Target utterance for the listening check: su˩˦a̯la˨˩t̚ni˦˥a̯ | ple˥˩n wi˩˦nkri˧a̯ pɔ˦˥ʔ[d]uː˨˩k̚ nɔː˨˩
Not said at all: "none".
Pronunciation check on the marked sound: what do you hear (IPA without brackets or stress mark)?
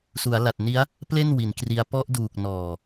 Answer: d